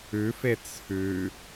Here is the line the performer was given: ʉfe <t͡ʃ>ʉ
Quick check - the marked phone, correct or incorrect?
incorrect